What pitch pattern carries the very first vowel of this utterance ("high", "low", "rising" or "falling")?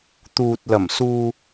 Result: low